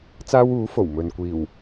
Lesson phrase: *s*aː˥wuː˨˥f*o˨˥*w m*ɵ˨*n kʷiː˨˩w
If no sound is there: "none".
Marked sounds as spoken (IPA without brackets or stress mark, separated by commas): t͡s, o˨˩, ɵ˨